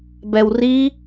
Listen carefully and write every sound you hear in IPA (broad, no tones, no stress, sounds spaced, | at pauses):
b ɛ w r i